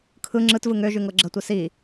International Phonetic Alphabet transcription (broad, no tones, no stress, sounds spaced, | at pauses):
kʰ ɯ ŋ͡ǁ ɯ t v ɯ ŋ ø ʒ ʉ ŋ ɤ ɡ͡ǁ ə tʷ ɯ s i